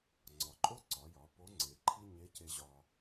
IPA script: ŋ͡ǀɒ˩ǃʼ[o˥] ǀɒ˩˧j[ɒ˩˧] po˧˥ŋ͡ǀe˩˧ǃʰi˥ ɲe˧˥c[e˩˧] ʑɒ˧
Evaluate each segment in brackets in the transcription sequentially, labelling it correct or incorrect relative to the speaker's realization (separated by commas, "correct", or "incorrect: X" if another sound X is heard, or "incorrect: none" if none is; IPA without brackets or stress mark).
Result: correct, correct, incorrect: e˧